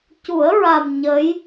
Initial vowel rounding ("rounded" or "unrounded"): rounded